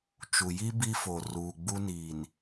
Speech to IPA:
t͡ʃ u˨ j i˦ b i˦ f o˨ r uː˨ ɡ͡b u˦ n iː˨ n

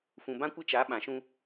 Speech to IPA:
f ũ˨ b ã˦ kʷ ɪ˦ t͡ʃ a˨˦ ɓ ã˨ ʃ ũ˦

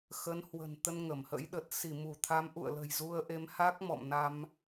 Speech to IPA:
x ə˨˦ n h w ə̤˨˩ n t̪ ə˧ n ŋ ə˧˩ m h ə̰˧˥ j ɗ ə˨˩ t̚ s i˧˩ m u˧˩ t̪ʰ a˨˦ m ʔ ṵ˧˨ ə̯ l ə̤˨˩ j z u˧ ə̯ ʔ e˨˦ m h a˦˥ k̚ m ɔ̰˧˨ m n a˧ m

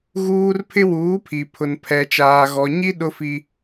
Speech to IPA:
ɣ uː˦ r pʰ ɪ˦ w uː˨˦ pʰ i˨ pʰ ʊ˨ n pʰ ɛ˨ t͡ʃ aː˨ ɣ ɔ˨ ɲ i˦ ɗ ʊ˦ f i˦

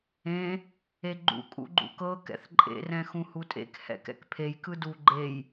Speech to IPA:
ẽ | e ɡ͡ǃ ṵ kʼ ṵ ɡ͡ǃ ṵ k ɤ k ɛ̰ θ ǃʼ ḛ r ɛ̃ x ũ h u tʼ ḛ k h ɛ̰ k ɛ̰ k pʰ e j k ɯ d u ɡ͡ǃ e j

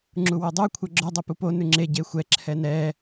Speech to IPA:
ŋ͡ǁ u w o dˤ u kʷʰ ɛ ɡ͡ǁ o dˤ ɛ p u p o n ʉ ŋ͡ǁ e ɟ e xʷ ɛ ǁʰ ɛ n ɛ

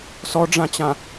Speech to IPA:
s ɔ ɖ͡ʐ ã t͡ɕ ã

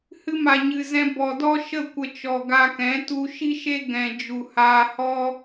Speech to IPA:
h ɨ˧ m a˨ ɲ ɨ˨ z ɛ̃˧ b ɔ˨ d ɔ˦ ʃ ə˦˨ kʷ ə˧ t͡ʃ ɔ˨ ɡ a˧ k ɛ̃˨˦ t u˧ ʃ i˦ ʃ e˦ ɡ ɛ̃˨ d͡ʒ u˨ h aː˧ h ɔ˦

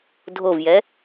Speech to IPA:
dʱ o v j ɛ

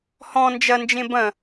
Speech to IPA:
h ɔ̃ n d͡ʒ ɐ n d͡ʒ ẽ b ɐ̃

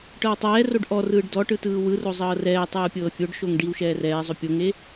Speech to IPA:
ʈ ɤ w tˤ ɛː r o ɖ ʔ ɔ r ɯː ɖ d ɔ ʈ ɯ t ɯː w ɯ r o zˤ ɤː r ɛː tˤ ɯː pʲ ɤː fʲ o ɖ ʃ o ŋ ɖ i w ʃ ɛː r ɛː zˤ o pʲ o ŋ e

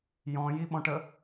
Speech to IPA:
j ɔ̃ j i ɓ ɔ̃ ʈ ə

